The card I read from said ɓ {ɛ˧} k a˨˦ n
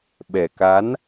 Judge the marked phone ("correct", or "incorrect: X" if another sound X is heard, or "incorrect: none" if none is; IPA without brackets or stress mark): incorrect: ɛ˨˩